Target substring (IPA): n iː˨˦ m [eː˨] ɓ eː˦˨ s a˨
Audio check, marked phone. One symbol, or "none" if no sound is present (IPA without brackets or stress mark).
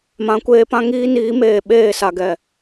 eː˨